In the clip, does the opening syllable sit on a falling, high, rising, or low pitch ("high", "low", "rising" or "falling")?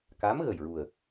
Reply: rising